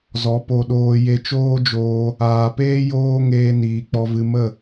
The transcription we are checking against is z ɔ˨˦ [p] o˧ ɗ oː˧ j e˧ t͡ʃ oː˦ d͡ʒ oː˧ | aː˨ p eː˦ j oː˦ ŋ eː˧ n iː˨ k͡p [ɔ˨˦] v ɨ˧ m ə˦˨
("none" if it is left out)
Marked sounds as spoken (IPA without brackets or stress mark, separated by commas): p, ɔ˧